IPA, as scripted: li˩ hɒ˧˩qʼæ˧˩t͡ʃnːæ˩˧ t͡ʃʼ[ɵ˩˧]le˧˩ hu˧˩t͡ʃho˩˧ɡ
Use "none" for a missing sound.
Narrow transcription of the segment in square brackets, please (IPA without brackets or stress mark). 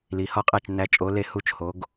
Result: o˩˧